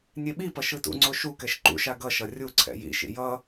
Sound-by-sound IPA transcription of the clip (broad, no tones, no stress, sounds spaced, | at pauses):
nʲ e ɓ i p ʌ ʃ ɯ t ṵ ŋ͡ǀ o ʃ u k ɛ ʃ ǃ ṵ ʃ a ɡ ʌ ʃ ʌ rʲ u ǀʰ ɛ̰ j ḭ ʃ ḭ j ʌ